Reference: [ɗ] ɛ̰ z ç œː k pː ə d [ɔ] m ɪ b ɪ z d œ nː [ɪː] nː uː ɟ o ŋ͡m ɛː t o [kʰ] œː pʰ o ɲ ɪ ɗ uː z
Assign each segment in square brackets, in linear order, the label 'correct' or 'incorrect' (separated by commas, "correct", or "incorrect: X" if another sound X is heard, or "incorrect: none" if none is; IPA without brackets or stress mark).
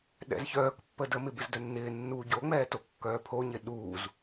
correct, incorrect: ə, correct, incorrect: kː